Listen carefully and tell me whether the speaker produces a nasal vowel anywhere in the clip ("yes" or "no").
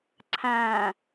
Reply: yes